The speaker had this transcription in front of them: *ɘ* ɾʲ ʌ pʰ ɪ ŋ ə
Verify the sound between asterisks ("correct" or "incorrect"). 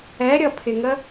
incorrect